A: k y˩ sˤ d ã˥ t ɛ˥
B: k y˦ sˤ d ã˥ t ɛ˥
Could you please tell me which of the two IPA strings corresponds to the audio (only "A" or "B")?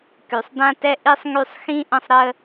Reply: A